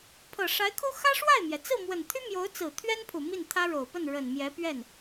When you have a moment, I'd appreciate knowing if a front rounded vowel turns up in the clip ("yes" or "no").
yes